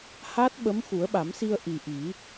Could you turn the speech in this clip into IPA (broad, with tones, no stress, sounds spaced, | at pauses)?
h a˦˥ t̚ ɓ ə˧˥ m x u˨˩˦ ə̯ ɓ a˨˩˦ m s i˧ ə̯ ʔ i˨˩ ʔ i˨˩˦